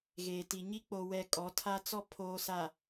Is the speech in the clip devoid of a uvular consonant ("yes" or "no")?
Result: yes